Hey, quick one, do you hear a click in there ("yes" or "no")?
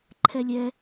yes